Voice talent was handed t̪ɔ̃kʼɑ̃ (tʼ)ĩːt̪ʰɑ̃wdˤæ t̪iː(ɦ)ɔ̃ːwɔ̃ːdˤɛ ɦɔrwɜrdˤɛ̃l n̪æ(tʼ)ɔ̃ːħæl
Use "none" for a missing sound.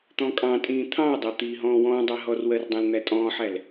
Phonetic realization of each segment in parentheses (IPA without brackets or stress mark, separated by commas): tʼ, ɦ, tʼ